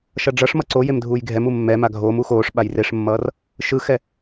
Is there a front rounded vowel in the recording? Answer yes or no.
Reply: no